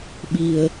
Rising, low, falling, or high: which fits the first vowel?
low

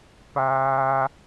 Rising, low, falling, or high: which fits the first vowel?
high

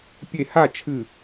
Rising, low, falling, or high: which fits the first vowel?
falling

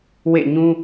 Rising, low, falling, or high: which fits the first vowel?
falling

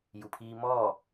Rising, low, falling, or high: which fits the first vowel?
low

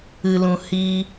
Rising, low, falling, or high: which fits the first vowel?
low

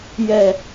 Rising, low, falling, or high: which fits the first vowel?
low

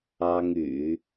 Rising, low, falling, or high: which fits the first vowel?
high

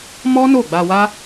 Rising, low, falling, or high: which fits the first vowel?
high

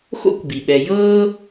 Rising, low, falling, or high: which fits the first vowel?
high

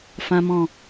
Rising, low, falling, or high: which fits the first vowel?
high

